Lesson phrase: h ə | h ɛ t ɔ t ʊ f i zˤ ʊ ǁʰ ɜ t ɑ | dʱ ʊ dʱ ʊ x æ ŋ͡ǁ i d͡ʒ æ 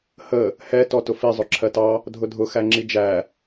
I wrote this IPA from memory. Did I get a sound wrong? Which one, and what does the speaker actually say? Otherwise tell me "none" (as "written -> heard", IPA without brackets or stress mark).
none